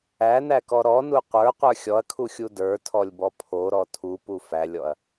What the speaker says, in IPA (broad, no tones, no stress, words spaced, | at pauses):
ænækɔ ɾɔnu qʷə˞qʷə˞ xʲɔɐ̯kʰuxʲu də˞tʰɔlʲbɔ pʰoɾɔ tʰupu fælʲɔɐ̯